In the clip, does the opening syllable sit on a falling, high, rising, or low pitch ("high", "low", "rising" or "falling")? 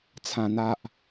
low